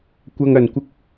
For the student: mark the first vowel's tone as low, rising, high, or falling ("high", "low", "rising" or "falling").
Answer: high